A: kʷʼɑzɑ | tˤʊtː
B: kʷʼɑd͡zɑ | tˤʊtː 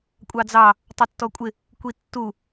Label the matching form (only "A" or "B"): B